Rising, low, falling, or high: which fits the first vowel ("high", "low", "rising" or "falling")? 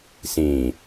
low